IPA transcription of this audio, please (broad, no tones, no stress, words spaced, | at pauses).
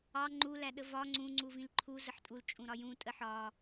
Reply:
ɑ ŋ͡ǃu læɗəvɒ ŋ͡ǀũ ŋ͡ǀuvĩlǃʰu zəħtʼul t͡ʃʼũɾɒjũ tʼəħɒ